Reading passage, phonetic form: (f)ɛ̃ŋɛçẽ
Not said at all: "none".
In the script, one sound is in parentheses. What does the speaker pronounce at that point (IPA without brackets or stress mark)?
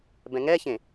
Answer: b